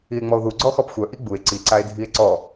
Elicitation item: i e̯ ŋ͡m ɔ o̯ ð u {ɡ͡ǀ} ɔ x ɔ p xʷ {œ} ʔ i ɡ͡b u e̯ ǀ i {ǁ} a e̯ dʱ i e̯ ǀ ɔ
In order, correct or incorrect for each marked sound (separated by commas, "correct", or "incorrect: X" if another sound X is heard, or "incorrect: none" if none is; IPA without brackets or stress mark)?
correct, correct, incorrect: ǀ